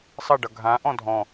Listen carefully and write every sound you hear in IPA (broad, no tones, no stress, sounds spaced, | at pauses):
sˤ ʌ ɖ ʌ ɡʱ ã ʔ ɔ̃ dʱ ɔ̃